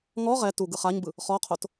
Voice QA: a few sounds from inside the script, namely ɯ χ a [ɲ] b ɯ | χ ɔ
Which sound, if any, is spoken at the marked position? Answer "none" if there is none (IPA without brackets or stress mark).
ɲ